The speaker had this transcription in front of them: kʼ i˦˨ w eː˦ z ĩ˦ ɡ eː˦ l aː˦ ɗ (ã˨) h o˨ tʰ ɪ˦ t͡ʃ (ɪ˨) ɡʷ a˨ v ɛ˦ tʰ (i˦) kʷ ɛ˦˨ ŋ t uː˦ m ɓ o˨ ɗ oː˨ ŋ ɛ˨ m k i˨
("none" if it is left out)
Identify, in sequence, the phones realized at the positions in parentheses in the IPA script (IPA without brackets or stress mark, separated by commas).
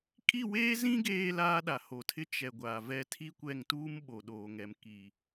a˨, ɛ˨, i˦